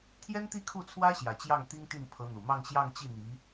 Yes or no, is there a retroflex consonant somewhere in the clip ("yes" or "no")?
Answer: no